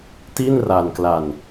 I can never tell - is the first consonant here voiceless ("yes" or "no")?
yes